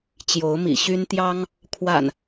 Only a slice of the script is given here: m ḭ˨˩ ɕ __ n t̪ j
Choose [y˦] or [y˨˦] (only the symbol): y˦